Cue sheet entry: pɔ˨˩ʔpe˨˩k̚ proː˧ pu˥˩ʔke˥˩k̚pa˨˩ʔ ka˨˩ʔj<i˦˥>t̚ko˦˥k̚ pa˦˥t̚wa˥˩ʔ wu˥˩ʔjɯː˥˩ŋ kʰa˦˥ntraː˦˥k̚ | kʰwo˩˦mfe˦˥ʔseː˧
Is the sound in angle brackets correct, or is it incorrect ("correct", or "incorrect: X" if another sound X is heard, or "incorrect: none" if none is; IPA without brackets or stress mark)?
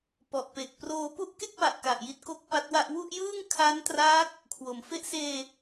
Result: correct